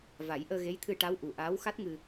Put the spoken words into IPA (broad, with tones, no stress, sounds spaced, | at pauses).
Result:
v a˨˩˦ j ʔ əː˧ ɣ e˧˥ j t̪ʰ ɨ˧ ʈ a˧˥ w ʔ u˨˩ ʔ aː˧˥ w x a˦˥ t̚ ŋ ɨ˧